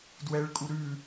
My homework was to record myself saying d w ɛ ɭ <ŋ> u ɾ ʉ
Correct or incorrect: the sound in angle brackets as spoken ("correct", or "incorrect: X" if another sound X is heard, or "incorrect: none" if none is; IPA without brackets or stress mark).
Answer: incorrect: kʼ